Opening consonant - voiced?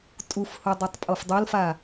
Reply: no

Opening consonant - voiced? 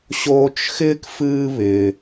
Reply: no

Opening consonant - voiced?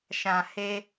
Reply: no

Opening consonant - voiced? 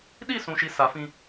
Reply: yes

